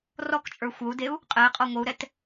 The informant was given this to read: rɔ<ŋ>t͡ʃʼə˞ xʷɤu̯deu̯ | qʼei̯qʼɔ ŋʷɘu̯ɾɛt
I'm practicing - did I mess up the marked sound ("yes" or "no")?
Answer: yes